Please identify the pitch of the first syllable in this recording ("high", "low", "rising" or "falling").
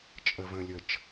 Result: low